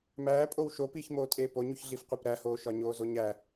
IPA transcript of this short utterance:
m æː pʼ o w ʃ o p iː ç m oː tʼ eː p o ɲ u ç ɮ i f qʷ e p ɾ æ h oː ʃ ɒ ɲ oː z o ɲ æ

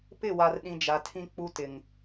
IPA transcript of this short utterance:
p ɪ˦˨ w a˨ r ɗ ĩ˨ d͡ʒ a˨ tʰ ĩ˦ k͡p u˦ t ɪ˨ ŋ

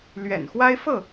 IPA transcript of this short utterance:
l ɥ ɛ̰˨˩ n x w a˦ ɪ̯ f ɤ˥˨

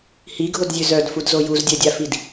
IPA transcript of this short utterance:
h i ɡʱ o d zʲ ø z œ d f u d z o j u z dʲ œ dʲ a f i d

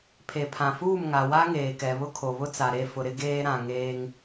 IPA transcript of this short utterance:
pʰ e˨ pʰ ã˨ f uː˦˨ m ŋ a˨ w a˦ ŋ eː˨ k ɛ˨ β ʊ˦ kʰ o˨ β ʊ˦ t͡s a˨ ɾ e˦˨ f ʊ˨ ɾ ɪ˦ ɡ eː˦ ɾ ã˨ ŋ eː˦ ŋ

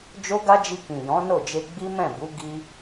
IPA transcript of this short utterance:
d͡ʒ o˦ ɡ a˦ d͡ʒ i˧ k ĩ˨ j ɔ̃˨˦ n o˦˨ d͡ʒ e˧ ɡ͡b i˦ m ɛ̃˦˨ b u˨˦ ɡ i˦

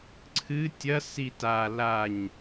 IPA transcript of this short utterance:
ǀʰ ɨ tʲ ɐ s i t a l a ɲ

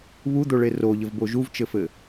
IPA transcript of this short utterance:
β u d̪ o ɭ e r o ʎ ɘ v b o ʒ u v t͡ʃ ɘ f ɘ

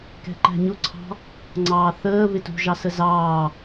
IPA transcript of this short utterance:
k ɛ̤ ǃ æ̤ ɲ ʊ ǀʰ ɑ̤ | ŋ͡ǀ ɑː θ əː β ɪ t ṳ ʒ ɑ s ə z ɑː

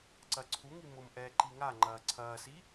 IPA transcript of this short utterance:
ǀ ɐ ǀʰ u ŋ i m ʊ m ʔ ɛː ǃ i ŋ a ŋ͡ǃ ɐː ǀʰ ɐː s i

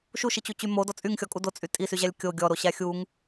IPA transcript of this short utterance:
ʃ u ʃ i t͡ɕ u t͡ɕ y m o d ɔ t͡sʼ y ŋ xʲ ɔ kʼ u d o t͡sʼ y tʼ i s y ʑ æ lʲ kʲ o ɡʲ ɔ ɾ o ɕ æ xʲ u ŋ

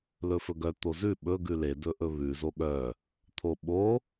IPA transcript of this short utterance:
l ɵ f ɵ ɡ œ t̪ o z ʉ ɓ ɵ ɡ ʉ l e d ɵ ʔ ɵ β ʉ z o ɠ œ | t̪ʰ o ɓ o

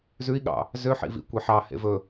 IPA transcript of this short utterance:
z ʉ i̯ ɠ ɑ̰ | z ø ħ ḭ v ḭ kʷ e ħ ɑ h ḛ v ɵ

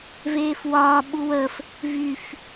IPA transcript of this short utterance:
v eː f w ɒː ɓ u w ə f | v y f

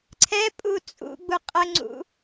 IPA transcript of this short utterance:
ǀʰ ɛ pʼ u t͡sʼ ṵ ɡ͡b u qʼ ə ŋ͡ǀ ṵ

